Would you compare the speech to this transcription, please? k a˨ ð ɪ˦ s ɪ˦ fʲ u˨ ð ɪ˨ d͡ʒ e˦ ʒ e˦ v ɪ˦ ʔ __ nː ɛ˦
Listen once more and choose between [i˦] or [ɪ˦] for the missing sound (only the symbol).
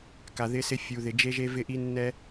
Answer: i˦